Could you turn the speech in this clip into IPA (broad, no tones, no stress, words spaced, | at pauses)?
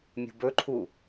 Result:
mʲṳbɵǃʰu